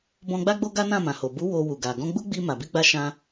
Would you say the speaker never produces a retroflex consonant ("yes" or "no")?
yes